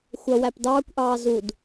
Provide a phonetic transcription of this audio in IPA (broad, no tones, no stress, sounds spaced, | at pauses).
xʷ ʌ w æ p d ɑː kʷ ʔ ɑː z u d